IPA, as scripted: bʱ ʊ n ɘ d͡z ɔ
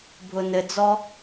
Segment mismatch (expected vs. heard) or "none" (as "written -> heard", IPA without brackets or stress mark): none